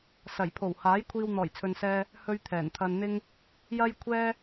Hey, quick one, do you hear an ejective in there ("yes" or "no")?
no